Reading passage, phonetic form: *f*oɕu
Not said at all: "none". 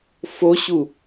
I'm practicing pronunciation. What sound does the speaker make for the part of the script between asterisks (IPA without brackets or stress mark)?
f